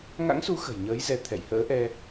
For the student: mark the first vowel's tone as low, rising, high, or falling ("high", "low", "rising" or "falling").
rising